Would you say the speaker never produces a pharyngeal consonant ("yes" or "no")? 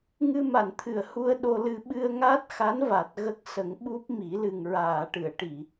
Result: yes